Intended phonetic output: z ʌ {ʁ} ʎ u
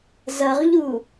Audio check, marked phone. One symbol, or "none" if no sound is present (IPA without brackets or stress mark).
ʁ